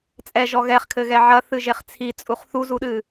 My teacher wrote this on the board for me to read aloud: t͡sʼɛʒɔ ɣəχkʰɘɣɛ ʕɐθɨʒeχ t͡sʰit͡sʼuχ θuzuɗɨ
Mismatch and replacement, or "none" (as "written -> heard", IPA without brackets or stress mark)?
ə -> ɛ